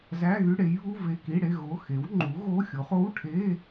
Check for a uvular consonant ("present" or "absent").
present